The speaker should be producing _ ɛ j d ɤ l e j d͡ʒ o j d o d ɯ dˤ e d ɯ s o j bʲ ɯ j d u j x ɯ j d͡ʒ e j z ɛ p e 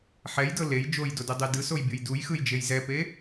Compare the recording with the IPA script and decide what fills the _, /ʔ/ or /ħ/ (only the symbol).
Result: ħ